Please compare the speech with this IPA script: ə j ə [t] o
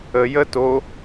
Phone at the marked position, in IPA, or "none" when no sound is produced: t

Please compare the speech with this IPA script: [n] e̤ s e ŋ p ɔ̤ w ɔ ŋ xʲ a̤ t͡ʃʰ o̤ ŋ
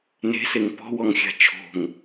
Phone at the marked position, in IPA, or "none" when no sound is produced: n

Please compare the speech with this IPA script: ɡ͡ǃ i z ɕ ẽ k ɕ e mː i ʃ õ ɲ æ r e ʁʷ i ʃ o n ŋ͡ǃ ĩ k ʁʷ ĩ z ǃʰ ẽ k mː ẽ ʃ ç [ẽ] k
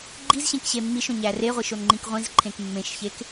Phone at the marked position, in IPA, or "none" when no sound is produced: e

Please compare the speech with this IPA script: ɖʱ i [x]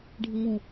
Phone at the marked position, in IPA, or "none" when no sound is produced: ŋ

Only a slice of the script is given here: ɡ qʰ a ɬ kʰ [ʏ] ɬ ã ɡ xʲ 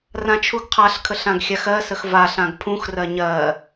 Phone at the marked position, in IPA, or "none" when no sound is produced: ə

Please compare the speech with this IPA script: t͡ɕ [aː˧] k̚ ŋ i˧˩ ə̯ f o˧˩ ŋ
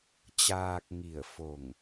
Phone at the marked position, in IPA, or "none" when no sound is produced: aː˧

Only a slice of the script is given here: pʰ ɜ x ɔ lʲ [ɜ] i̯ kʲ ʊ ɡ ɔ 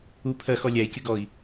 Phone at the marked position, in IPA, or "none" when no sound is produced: æ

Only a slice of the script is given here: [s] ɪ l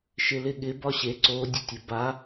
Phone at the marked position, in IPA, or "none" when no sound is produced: ʃ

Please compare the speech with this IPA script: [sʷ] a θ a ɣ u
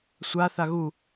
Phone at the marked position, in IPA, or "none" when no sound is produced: sʷ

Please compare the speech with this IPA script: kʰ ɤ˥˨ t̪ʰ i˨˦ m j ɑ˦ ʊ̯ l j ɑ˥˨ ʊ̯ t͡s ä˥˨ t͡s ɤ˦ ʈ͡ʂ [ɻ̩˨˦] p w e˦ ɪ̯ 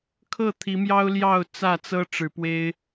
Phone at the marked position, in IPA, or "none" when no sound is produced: ɻ̩˨˦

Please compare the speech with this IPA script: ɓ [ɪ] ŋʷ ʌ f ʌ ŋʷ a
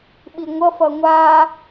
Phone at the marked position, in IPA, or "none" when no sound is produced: i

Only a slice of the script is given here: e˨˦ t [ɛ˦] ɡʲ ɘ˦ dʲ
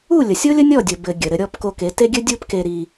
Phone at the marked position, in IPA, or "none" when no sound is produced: e˦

